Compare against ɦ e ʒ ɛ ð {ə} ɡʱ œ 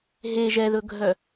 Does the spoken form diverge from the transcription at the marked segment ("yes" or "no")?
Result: yes